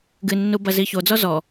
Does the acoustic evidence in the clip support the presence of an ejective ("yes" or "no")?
no